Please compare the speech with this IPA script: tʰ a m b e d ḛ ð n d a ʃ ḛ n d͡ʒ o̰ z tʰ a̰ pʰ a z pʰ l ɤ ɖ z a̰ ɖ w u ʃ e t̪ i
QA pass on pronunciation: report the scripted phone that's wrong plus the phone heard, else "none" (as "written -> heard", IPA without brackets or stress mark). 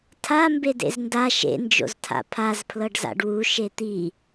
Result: ð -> z